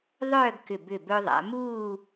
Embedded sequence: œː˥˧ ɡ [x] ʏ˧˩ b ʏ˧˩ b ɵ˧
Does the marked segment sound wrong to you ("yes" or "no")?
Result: yes